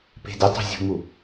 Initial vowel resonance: oral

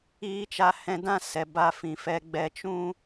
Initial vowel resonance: oral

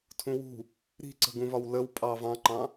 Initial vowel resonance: nasal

